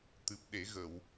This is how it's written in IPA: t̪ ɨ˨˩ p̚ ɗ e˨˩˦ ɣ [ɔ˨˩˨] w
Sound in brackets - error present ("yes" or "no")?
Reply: yes